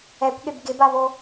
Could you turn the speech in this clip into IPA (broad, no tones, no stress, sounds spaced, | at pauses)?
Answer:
ɛ kʷ ɠ e b ɡ ɪ b a β o